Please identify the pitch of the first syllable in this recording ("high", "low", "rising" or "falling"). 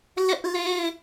high